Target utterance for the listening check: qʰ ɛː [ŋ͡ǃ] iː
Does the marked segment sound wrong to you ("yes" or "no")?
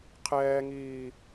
yes